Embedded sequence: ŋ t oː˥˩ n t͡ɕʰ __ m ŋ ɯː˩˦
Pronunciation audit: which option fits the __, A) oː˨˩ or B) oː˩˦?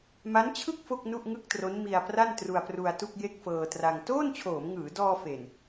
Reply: B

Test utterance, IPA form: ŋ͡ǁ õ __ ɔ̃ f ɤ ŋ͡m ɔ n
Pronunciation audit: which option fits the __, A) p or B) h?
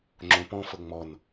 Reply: A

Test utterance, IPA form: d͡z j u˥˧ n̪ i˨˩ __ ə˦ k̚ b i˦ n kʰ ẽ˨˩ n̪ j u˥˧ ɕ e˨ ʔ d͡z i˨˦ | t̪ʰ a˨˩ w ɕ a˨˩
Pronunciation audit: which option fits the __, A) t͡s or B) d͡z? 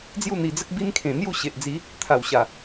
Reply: B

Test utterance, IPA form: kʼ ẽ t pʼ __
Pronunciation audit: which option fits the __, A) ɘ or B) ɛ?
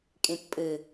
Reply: A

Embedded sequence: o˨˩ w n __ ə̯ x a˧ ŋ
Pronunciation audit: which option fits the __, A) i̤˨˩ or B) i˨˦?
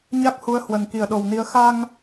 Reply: B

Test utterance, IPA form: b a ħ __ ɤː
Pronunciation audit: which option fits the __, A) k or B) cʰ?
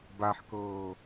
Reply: A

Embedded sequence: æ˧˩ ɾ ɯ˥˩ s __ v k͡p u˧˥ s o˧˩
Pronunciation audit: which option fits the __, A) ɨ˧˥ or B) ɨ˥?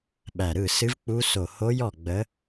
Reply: A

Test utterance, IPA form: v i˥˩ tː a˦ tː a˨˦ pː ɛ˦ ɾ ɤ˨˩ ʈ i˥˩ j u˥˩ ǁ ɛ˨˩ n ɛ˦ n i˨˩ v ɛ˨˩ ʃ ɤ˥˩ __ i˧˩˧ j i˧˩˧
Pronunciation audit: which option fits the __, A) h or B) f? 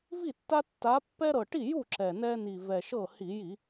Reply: A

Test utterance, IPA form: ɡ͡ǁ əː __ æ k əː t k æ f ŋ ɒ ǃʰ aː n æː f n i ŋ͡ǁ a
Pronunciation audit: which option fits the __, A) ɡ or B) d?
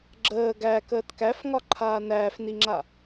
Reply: A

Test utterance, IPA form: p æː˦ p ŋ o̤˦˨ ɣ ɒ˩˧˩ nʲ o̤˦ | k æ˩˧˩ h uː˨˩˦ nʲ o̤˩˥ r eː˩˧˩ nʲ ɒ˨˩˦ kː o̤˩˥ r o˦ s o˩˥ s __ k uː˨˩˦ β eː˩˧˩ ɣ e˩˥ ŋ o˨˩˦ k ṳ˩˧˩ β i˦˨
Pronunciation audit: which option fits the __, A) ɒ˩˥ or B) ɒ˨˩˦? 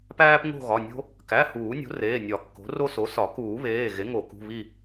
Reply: B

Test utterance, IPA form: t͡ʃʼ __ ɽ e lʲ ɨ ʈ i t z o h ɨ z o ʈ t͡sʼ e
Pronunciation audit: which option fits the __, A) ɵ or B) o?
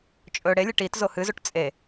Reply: A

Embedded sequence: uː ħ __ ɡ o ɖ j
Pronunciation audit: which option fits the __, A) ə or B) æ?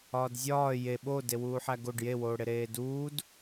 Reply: B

